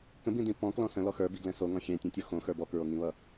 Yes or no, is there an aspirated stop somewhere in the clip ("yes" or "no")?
no